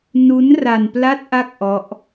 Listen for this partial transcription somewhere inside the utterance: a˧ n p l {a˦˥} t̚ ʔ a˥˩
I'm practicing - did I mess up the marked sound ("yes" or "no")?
no